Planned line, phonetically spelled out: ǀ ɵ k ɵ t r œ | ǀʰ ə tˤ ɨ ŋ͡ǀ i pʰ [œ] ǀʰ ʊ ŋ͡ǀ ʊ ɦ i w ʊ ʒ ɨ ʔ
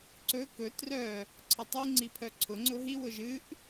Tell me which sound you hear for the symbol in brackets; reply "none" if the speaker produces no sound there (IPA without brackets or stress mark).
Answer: œ